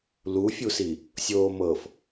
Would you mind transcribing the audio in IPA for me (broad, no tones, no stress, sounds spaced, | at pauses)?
l u fʲ u s i | sʲ oː m ɤ f